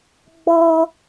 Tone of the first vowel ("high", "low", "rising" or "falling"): high